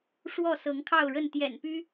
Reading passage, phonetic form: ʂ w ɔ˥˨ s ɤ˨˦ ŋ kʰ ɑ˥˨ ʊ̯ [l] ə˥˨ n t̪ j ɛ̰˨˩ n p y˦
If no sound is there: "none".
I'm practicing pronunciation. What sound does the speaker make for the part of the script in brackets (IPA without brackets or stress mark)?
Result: ɻ